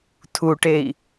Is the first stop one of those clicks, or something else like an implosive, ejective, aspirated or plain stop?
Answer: aspirated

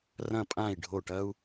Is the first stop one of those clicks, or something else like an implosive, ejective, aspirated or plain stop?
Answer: ejective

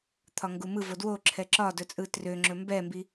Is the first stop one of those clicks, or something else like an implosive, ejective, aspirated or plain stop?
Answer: aspirated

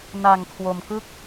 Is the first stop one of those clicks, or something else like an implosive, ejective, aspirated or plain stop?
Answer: aspirated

